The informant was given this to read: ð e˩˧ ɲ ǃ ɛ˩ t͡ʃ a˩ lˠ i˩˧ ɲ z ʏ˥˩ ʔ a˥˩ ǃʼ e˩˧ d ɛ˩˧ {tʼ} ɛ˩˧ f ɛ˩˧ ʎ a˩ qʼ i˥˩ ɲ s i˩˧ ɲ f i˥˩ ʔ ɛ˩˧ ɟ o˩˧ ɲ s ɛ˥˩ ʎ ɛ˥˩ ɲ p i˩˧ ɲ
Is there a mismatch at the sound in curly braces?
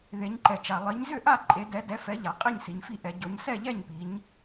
yes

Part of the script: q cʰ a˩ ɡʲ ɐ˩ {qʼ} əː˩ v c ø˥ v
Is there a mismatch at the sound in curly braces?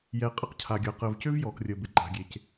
yes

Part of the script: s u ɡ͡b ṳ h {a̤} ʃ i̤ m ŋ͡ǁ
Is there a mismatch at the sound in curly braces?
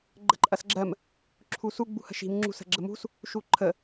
yes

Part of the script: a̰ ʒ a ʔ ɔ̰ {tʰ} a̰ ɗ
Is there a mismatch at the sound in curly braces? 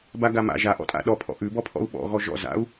yes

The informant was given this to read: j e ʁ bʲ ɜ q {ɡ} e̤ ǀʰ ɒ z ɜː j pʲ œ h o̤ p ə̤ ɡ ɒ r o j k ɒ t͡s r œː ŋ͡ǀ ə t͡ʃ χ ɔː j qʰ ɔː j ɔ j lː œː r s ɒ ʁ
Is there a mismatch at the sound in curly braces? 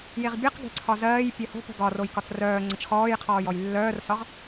no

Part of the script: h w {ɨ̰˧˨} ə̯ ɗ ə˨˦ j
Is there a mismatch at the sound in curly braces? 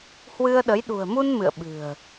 yes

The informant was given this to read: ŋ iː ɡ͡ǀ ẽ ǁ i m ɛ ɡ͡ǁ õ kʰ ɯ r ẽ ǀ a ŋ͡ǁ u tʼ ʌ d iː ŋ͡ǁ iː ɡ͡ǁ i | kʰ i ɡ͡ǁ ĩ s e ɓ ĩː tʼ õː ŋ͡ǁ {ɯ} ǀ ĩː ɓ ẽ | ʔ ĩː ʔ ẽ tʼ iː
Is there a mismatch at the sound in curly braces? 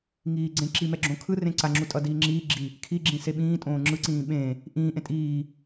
no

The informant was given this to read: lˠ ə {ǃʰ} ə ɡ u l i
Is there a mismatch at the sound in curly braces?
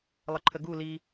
no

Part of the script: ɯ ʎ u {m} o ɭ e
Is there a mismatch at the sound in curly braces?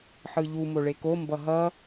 no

